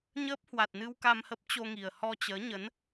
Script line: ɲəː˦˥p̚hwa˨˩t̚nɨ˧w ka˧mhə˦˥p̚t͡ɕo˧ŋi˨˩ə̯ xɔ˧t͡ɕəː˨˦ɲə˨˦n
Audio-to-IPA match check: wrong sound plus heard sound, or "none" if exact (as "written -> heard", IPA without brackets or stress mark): x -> h